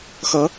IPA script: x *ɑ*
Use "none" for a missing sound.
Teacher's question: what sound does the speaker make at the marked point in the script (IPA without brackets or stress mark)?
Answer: ʌ